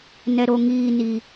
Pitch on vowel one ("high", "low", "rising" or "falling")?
low